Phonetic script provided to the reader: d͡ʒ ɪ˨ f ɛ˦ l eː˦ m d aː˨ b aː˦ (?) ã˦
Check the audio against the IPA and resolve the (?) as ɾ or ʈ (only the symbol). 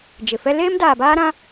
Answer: ɾ